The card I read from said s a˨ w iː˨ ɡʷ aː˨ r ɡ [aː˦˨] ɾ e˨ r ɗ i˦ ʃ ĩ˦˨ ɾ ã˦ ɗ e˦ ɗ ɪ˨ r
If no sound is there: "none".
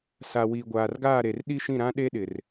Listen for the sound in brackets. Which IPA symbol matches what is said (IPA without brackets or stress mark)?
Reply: aː˦˨